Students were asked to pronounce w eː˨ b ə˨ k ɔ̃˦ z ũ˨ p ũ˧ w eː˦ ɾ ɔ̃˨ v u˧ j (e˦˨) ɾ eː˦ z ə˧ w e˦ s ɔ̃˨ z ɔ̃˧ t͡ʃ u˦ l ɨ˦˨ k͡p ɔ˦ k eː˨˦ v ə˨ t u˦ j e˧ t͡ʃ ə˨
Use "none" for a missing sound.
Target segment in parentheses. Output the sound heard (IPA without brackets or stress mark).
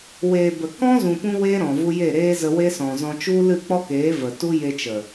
e˦˨